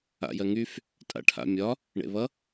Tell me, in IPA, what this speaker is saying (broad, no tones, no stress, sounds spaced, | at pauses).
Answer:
a̰ j ɜ ŋ y f | tʼ a̰ ʈʰ a̰ mʲ ɒ | ɳ ḛ β ʌ